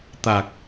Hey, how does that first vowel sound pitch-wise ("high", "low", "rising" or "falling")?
low